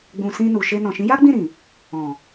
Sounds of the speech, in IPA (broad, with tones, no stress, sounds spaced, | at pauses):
ɡ͡b ũ˨ s ĩ˧ n u˨ ʃ e˧ n ɔ̃˨ ʃ ĩ˨˦ j a˦ ɡ͡b ĩ˦˨ ɾ ĩ˨ | ɔ̃˨